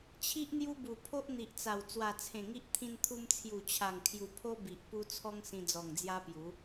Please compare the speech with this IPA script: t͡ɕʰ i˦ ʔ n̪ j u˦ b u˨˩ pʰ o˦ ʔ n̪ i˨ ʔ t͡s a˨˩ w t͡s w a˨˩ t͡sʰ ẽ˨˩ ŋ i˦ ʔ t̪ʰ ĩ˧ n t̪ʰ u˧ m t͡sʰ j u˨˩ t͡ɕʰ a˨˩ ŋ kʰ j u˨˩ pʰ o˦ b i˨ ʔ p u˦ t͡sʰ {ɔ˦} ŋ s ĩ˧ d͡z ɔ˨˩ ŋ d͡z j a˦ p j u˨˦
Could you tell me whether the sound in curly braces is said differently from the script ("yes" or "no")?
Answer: no